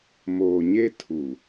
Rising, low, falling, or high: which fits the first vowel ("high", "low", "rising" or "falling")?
low